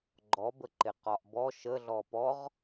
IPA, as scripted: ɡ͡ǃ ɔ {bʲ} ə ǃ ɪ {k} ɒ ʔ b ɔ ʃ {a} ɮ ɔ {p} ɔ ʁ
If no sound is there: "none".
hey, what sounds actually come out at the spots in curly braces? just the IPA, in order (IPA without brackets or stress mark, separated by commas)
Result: b, q, ə, p